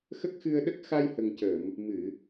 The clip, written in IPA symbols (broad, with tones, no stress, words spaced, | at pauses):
xə˦˥k̚xɨ˧ə̯ɗə˦˥k̚ xa˧jhə˨˩ŋcəː˨˩˨m | mɨ˨˩˨